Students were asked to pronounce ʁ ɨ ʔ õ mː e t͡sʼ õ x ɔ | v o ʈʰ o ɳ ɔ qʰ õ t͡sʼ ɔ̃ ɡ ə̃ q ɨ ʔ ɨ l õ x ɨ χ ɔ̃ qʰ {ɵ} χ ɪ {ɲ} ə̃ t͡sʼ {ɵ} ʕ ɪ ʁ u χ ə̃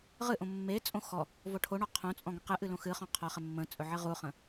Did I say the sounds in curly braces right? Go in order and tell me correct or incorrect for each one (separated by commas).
incorrect, incorrect, correct